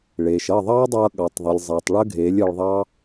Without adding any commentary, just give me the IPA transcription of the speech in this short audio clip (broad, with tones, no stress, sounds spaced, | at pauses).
ɭ eː˨ ʃ ʌ˦˨ ðˤ ɑː˦ dˤ ʌː˧ ɠ ɑ˨ tˤ ðˤ ə˨ lʲ zˤ eː˨ tˤ ɭ əː˦ ɡʱ eː˨˦ lʲ əː˧ ɭ ðˤ ɑ˦